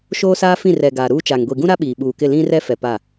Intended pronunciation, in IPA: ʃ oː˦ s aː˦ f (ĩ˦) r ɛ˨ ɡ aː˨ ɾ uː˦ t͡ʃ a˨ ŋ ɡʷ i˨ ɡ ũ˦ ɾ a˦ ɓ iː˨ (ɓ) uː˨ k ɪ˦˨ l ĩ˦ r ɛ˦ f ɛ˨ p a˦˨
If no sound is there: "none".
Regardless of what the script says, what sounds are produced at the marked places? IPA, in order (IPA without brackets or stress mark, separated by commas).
ĩ˦˨, ɓ